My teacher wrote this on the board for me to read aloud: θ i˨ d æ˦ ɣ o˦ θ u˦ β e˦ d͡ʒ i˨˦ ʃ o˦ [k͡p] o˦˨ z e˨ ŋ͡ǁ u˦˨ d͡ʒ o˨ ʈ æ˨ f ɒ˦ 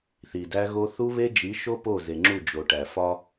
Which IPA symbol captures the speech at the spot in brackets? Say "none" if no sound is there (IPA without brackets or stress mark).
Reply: p